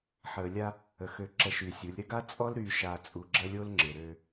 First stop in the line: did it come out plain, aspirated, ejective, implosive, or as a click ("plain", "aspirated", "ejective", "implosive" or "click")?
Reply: click